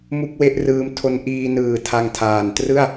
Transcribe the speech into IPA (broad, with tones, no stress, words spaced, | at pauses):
mu˥˩k̚we˥˩ʔrɯː˦˥m tʰo˧nʔiː˧nɯː˨˩ tʰa˧ŋtʰaː˨˩n trɯ˥˩a̯